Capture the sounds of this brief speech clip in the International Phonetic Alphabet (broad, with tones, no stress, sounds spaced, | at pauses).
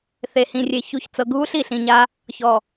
θ e˨ h ĩ˨ rʲ e˨ ç u˨ ç t͡s ɤ˨ ɡʱ u˦ ɬ i˨ ɬ ĩ˨ ɲ a˦ | ç ɔ˨